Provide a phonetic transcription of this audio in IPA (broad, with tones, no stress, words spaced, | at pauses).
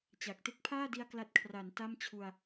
t͡ɕa˨˩k̚ te˦˥k̚pʰaː˥˩di˧a̯ kla˦˥t̚kʰra˩˦n ta˥˩mt͡ɕʰu˧a̯